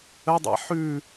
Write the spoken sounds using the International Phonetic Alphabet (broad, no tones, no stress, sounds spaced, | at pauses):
ə dˤ a̰ ħ ʉ